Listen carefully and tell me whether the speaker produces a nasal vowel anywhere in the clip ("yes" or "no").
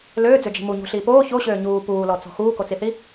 no